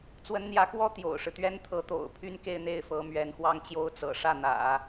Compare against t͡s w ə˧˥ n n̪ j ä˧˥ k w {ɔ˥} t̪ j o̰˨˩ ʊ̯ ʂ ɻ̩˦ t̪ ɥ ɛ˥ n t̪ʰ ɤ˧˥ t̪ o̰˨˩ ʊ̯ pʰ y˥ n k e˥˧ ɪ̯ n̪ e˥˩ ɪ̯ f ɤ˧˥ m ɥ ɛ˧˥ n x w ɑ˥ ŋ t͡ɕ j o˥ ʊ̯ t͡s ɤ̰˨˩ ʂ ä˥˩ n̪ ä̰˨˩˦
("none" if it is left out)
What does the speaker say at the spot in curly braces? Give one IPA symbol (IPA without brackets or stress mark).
ɔ˥